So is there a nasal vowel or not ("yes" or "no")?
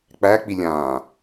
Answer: yes